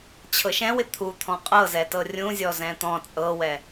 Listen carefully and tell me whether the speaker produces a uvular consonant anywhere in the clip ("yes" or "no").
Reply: yes